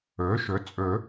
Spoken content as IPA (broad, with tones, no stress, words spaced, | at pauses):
ɵː˩˥ʃɵ˩˥ t͡sʼɵ˨˩˦